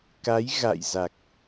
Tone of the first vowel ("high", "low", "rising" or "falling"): rising